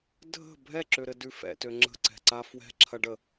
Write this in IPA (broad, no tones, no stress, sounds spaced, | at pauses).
dʱ ə̤ bʱ ɛ ǁ ø ɾ ɘ d ʉ f ɛ̰ t ø ŋ͡ǁ ə̤ ǀ ɛ̤ ǀ a f w ɛ̤ ǁʰ ɐ ɖ ə